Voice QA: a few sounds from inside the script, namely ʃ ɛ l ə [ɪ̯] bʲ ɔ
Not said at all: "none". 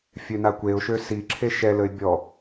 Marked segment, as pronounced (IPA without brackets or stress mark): ɪ̯